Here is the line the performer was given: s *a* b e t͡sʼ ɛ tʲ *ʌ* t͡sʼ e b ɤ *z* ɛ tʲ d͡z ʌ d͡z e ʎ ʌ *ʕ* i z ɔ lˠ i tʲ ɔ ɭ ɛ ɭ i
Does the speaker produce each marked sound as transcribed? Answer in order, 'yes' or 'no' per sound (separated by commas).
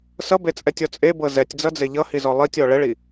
no, no, yes, no